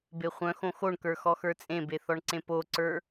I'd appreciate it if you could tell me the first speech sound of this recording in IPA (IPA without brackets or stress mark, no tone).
b